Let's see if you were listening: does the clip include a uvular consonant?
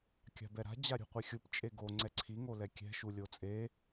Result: yes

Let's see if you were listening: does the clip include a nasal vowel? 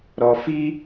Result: no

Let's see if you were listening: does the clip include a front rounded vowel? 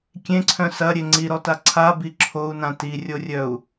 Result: yes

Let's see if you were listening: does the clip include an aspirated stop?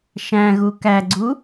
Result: no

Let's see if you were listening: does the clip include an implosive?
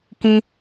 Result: no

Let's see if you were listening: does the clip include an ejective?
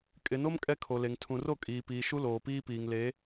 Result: yes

